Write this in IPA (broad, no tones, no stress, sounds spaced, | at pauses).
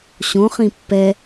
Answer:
ɕ õ χ ĩ pː ɛ